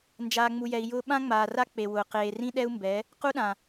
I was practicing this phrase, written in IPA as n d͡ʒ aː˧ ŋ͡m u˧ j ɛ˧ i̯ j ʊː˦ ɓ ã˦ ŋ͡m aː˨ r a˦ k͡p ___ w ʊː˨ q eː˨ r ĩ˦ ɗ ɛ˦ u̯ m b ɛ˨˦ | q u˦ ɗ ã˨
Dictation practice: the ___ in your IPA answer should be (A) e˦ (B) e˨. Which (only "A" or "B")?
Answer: B